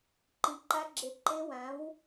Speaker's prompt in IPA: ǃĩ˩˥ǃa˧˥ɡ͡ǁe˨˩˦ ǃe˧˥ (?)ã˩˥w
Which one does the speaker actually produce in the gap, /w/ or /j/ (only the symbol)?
w